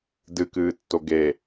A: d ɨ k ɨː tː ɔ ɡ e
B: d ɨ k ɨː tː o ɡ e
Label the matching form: B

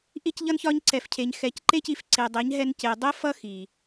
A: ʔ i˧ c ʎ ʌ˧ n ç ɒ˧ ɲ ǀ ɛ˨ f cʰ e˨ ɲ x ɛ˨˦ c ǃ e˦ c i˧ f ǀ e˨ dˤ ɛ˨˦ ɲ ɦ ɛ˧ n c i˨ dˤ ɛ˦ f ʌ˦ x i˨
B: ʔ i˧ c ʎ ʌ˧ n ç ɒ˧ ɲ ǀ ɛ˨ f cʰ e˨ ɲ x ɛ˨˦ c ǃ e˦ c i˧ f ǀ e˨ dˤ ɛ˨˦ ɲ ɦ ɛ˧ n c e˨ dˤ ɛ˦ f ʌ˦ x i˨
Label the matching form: B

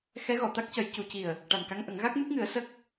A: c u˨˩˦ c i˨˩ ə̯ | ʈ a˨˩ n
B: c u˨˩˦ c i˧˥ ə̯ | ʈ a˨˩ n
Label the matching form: A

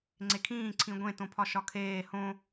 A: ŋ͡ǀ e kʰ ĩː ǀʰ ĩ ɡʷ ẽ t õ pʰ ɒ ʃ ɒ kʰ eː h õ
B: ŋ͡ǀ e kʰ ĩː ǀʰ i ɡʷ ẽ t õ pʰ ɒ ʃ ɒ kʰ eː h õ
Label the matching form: A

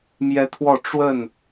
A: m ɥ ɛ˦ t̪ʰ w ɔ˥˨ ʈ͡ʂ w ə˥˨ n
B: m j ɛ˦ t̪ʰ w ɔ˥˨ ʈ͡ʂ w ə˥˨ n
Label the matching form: B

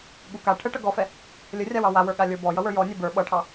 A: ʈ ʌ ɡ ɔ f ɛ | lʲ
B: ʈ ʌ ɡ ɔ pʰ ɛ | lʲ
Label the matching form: A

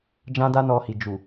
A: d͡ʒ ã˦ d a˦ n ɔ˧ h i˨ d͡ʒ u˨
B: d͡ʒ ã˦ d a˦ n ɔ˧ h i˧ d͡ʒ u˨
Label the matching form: A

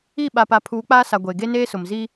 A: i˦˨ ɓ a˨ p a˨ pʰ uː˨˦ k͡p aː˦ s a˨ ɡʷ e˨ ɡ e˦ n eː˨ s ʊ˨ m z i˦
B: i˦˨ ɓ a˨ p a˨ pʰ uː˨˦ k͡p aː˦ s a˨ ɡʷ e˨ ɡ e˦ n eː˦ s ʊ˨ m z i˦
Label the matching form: B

